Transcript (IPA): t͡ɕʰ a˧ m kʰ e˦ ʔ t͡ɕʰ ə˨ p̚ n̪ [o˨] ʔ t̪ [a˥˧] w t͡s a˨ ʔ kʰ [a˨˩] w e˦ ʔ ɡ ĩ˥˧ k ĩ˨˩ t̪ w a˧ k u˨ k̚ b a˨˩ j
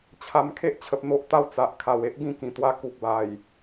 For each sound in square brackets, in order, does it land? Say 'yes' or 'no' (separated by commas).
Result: no, no, yes